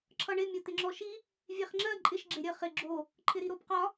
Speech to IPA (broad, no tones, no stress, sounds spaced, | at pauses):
ǁʰ ʌ ɳ ɪ mʲ ʌ t̪ ɪ ŋ͡ǁ ɔ ʃ i | vʲ e χ ŋ͡ǁ ɜ ǃʼ ɪ ʃ ɡ͡ǁ e ɾʲ ə χ ɪ ɡ͡ǁ o | ǃʰ ɪ ɾ i ɾ o b q ɒ